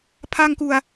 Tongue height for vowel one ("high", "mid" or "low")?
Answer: low